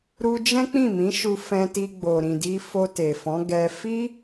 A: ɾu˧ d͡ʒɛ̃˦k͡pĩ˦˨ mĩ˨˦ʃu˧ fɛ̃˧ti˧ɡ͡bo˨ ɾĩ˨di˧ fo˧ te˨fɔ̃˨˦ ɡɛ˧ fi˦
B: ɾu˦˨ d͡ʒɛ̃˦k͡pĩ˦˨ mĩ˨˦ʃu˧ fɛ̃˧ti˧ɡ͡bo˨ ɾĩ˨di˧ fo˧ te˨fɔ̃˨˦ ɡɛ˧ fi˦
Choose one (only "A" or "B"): A